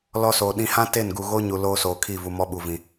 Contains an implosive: yes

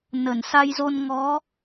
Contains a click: no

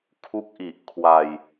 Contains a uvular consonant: no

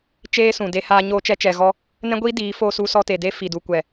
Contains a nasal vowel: yes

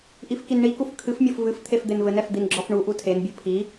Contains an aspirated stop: yes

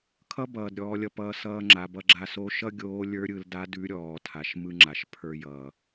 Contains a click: yes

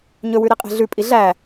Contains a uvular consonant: yes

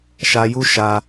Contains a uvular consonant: no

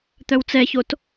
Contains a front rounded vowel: yes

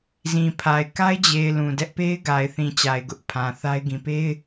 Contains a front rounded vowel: no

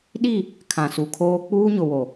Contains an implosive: yes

